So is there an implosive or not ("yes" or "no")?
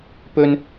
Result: no